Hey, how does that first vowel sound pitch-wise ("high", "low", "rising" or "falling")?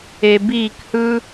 low